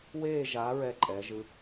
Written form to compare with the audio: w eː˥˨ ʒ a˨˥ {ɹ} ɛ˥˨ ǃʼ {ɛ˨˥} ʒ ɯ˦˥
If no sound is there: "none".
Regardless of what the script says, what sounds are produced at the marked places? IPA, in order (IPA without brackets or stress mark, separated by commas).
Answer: ɹ, ɛ˨˥